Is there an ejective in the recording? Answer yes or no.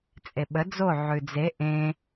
yes